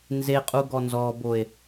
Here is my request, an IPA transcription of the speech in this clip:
n z e qʼ u ɡ ɔ n z ɔ b o e̯

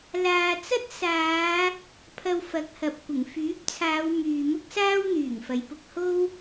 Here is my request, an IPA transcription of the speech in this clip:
l aː˨ t͡s ɐ˥ t̚ s aː˨˧ | pʰ ɐ˧ w f ɐ˨˥ k̚ h ɐ˨ p̚ kʷ ɪ˨˩ ŋ f yː˨˥ p̚ t͡sʰ aː˨˧ w m yː˨ m ʊ˥ k̚ s aː˥ w n̪ yː˨˩ ŋ f ɐ˨ j p ʊ˥ k̚ h o˥ w

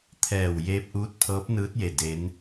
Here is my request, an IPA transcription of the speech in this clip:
t̪ʰ ɛː˧˩ w j eː˧˥ p̚ ʔ uː˧˥ t̚ pʰ ɤː˧˥ p̚ n ɯː˧˥ t̚ j e˧˩ d e˧˥ n

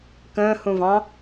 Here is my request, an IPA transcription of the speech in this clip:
k ə̃ː h ũ v ɑ̃

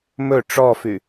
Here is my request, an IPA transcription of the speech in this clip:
m ɵ ʈ͡ʂ ɔ f y

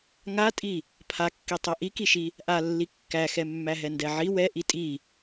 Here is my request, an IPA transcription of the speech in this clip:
ŋ a tʼ i | pʰ a kː i tˤ ɛ ʔ i k i ʃ i | ʔ a lː i kː æ x ɛ mː æ ɦ ɛ n d ɛ ʕ i w ɛ ʔ i tʼ i

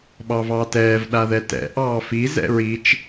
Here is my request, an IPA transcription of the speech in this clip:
ɓ ɑ v ɑː t ɛː v ɗ a ð ɛ t ɛ̰ ʔ ɑː f i z ɛ̰ ɹ i t͡ʃ

